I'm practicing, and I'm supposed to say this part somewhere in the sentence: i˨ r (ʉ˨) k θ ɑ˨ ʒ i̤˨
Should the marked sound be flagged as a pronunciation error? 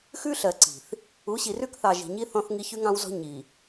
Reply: yes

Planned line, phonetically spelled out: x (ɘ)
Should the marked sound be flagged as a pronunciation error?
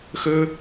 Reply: no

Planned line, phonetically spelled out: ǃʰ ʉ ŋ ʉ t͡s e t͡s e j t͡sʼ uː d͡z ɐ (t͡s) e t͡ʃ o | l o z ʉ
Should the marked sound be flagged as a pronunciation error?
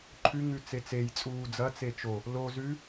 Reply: no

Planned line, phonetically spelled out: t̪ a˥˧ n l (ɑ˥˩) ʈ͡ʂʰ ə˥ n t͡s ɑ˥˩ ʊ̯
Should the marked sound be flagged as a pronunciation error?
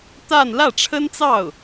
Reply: yes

